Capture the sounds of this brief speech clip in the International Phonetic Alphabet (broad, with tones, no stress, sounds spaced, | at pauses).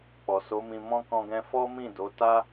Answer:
k͡p ɔ˨ s o˨˦ m ĩ˧ m ɔ̃˦ k ɔ̃˧ ɡ ɛ̃˧ f ɔ˦ m ĩ˦˨ d o˨˦ t a˦